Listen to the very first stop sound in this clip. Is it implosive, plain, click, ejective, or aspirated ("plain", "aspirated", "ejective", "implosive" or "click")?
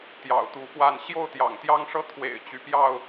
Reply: plain